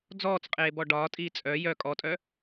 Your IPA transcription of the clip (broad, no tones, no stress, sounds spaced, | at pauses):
d͡z ɔː t͡s qʼ eː b ɔ ɖ ɒː tʼ iː t͡sʼ œ j œ kʼ ɔ tʼ œ